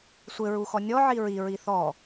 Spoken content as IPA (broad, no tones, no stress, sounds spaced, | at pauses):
sʷ ɘ ɹ u x ɔ nʲ ɔ ʕ i ɹ i ɹ i θ ɔ